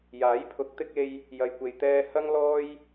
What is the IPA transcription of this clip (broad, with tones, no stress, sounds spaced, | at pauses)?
j aː˨˥ j pʰ ʊ˨˥ k̚ t̪ ɪ˧ k̚ e˧ j | j ɐ˨ j kʷ e˨ j t̪ ɛː˧ h ɐ˥ ŋ l ɔː˥ j